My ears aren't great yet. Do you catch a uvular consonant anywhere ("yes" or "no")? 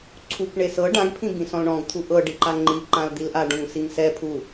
no